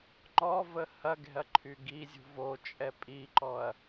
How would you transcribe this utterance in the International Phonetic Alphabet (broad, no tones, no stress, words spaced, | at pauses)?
ŋ͡ǃɔvə hɐɡɛ̤ɐ̯ ǃʰyɡizʲṳv o t͡ʃʼɛpʼiǃɔɐ̯